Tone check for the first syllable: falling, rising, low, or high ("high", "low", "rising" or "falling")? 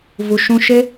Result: low